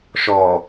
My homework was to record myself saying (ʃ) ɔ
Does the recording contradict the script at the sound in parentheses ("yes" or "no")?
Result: no